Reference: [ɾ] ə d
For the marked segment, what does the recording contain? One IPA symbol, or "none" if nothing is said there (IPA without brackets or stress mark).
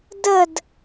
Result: d